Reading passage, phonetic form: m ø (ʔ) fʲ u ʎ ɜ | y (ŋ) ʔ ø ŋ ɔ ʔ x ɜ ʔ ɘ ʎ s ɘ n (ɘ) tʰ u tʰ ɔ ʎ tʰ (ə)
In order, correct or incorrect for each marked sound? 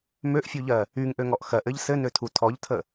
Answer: correct, correct, incorrect: ø, correct

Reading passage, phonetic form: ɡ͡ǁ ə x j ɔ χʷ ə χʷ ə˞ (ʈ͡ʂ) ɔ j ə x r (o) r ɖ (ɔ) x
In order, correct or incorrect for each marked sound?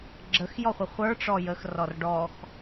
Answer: correct, incorrect: ɔ, correct

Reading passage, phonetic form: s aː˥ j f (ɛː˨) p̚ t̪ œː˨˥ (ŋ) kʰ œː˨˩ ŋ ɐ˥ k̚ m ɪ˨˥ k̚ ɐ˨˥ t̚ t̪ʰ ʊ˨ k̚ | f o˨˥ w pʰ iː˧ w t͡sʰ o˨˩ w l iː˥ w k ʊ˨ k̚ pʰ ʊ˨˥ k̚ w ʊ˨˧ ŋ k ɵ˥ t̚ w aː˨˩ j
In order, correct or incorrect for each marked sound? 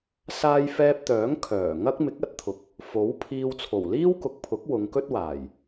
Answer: incorrect: ɛː˧, correct

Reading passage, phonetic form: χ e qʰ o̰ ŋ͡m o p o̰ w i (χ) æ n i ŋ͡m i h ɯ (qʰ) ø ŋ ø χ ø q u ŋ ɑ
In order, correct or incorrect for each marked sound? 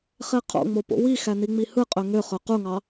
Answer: incorrect: x, incorrect: qʼ

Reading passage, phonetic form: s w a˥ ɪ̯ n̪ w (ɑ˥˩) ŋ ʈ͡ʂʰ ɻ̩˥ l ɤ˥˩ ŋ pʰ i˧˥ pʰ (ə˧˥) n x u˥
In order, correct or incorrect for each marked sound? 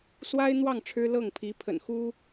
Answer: correct, incorrect: ə̰˨˩

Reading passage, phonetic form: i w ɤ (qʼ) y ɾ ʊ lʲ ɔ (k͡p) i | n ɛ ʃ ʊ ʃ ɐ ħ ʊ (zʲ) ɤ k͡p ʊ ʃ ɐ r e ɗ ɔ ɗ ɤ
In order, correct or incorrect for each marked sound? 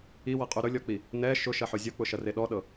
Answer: correct, correct, correct

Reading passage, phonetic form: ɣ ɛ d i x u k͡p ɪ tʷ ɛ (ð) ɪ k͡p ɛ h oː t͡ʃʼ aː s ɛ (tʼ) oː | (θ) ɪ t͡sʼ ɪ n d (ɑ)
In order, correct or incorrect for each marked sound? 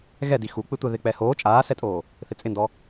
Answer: correct, correct, correct, incorrect: ɔ

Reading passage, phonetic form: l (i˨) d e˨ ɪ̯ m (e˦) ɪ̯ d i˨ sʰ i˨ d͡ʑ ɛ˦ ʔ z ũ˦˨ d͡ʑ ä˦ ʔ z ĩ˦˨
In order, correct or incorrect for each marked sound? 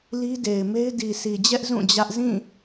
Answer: incorrect: i˦, correct

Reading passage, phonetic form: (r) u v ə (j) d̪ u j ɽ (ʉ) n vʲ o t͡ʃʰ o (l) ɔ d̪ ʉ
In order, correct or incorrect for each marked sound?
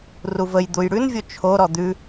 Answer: correct, correct, correct, incorrect: ɾ

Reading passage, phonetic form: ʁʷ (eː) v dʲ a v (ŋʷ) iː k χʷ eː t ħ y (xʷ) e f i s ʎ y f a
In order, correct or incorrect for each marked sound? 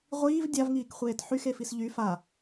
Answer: incorrect: iː, incorrect: ŋ, incorrect: x

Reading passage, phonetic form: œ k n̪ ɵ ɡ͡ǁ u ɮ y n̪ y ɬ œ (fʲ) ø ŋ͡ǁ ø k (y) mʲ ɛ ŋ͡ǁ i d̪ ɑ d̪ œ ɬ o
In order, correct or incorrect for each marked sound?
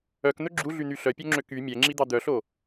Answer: incorrect: pʲ, correct

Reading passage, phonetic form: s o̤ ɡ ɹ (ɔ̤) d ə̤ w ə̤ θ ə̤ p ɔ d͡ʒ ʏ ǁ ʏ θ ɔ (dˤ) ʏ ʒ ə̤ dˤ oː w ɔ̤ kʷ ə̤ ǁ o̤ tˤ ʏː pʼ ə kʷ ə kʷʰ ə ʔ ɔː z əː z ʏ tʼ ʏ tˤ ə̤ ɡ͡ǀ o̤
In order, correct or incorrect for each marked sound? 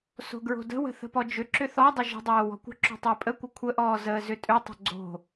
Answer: incorrect: o̤, correct

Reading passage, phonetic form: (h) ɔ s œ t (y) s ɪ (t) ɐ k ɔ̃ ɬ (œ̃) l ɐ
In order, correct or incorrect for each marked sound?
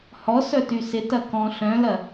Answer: correct, correct, correct, correct

